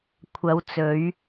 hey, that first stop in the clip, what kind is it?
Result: aspirated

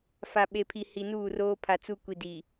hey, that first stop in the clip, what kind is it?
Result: implosive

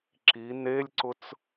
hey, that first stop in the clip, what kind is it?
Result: click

